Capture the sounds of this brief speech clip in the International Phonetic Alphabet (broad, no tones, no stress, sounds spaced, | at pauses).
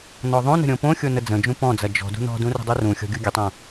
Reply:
n ɔ ðˤ õ n ə̤ ɾʲ õ p õ xʲ o n ə d͡z ə̃ d͡ʒ ũ p ɔ̃ d͡z ɐ d͡ʒ ɔ̤ d ṳ n ɔ̤ d ũ r ə̤ dˤ o r ũ xʲ ɔ̤ ɡʲ u ɡʲ ə tˤ õ